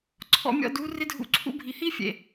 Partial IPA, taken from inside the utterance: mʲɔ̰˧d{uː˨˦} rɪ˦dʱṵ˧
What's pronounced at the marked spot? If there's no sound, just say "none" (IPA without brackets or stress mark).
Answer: u˨˦